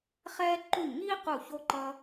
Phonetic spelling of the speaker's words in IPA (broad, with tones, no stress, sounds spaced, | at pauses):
χ ɛː˦ ǃ u˧˩ ɲ ŋ iː˦ q u˧˩ ç o˦ ǃ ʌ˦